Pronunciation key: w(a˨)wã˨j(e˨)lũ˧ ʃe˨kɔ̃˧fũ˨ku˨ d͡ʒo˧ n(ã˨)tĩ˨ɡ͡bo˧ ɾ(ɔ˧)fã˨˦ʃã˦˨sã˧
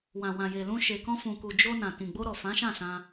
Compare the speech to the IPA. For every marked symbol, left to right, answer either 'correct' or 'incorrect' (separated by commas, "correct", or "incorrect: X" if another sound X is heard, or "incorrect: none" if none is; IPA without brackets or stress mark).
incorrect: ã˨, correct, correct, incorrect: ɔ˨